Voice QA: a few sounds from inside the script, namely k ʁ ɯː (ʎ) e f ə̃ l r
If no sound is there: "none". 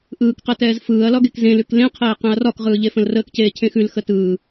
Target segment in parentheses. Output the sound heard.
ʎ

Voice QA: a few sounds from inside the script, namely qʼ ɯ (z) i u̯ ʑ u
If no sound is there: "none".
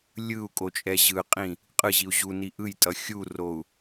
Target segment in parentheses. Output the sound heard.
ʑ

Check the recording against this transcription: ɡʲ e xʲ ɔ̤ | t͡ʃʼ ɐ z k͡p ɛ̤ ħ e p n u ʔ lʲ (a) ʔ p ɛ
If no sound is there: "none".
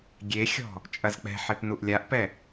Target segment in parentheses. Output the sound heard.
a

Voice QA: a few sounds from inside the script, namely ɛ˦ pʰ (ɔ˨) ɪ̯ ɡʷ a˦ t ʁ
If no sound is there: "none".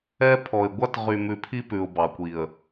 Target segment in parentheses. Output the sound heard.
ɔ˨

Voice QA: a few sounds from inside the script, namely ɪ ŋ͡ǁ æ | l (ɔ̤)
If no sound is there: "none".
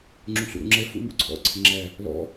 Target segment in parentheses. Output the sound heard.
ɔ̰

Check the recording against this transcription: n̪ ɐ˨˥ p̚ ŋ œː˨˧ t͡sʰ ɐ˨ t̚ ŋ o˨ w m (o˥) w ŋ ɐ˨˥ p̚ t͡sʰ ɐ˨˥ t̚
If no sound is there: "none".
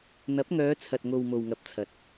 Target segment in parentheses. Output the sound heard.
o˨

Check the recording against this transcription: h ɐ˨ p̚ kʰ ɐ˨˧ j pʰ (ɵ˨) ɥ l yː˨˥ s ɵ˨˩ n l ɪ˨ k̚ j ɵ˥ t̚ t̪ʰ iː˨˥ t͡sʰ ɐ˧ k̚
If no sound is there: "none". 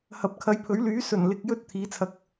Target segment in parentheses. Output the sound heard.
ɵ˨˥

